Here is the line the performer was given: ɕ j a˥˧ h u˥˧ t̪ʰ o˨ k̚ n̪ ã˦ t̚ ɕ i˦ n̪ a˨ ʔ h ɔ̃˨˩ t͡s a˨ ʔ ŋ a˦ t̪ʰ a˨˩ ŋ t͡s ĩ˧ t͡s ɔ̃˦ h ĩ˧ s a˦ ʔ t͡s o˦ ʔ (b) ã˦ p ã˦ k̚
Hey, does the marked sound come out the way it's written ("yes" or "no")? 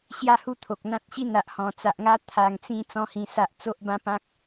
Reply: yes